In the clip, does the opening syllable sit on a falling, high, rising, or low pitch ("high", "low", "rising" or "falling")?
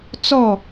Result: falling